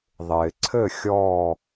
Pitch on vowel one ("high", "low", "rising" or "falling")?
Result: low